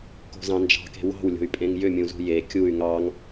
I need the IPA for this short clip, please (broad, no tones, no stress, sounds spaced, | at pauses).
k o̤ z ɑ̃ n d͡ʒ ɑ̤ k e̤ w ɑ̤ w lʲ o̤ y̯ pʼ ẽ ŋ j ʏ mʲ ũ z ṳ j e kʲ u y̯ ŋ ɑ ŋ